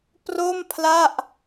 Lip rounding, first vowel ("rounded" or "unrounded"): rounded